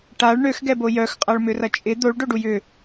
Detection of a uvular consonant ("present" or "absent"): present